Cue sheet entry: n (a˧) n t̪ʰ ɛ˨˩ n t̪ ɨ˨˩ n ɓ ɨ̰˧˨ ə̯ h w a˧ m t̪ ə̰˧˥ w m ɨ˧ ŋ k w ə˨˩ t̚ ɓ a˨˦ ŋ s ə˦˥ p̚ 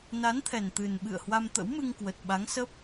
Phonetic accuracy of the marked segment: incorrect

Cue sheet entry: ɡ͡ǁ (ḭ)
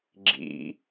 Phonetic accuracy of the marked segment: correct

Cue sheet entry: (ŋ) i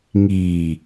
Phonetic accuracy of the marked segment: correct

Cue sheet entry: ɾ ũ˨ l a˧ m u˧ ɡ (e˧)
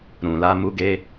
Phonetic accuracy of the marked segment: correct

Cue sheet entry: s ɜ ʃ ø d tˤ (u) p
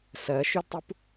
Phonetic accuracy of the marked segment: correct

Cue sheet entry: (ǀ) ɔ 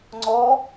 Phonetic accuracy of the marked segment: incorrect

